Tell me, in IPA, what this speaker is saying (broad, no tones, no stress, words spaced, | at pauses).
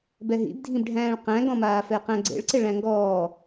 bɛɦḭbdʱĩbɖʱæ̃ːɭ qæ̃ɡɔ̃maː fɛqæ̃ɡ͡ǀḛɭǀe ɭæ̃ŋɡɔː